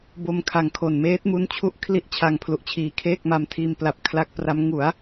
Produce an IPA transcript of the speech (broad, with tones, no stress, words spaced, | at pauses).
bo˧mkʰa˨˩ŋ kʰo˨˩nmeː˦˥t̚mu˦˥nt͡ɕʰu˦˥ʔ kʰli˥˩ʔt͡ɕʰa˧ŋpʰlu˨˩ʔ t͡ɕʰiː˩˦kʰeː˥˩k̚ma˧mtʰiː˧m pla˨˩p̚ kʰla˦˥k̚pra˦˥m ŋu˩˦a̯